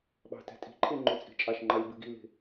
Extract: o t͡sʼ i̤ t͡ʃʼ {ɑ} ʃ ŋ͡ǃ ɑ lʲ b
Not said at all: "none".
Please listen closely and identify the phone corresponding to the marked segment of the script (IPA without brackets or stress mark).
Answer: ɑ